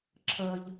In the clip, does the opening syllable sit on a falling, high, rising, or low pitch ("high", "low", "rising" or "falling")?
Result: high